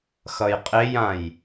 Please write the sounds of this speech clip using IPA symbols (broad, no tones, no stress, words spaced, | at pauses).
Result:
xʌjqʼejãj